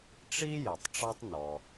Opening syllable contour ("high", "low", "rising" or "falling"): high